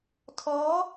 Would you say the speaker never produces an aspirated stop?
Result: no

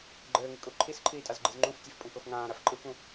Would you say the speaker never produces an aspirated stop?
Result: no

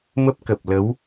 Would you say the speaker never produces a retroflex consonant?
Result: yes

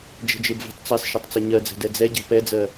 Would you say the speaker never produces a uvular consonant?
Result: yes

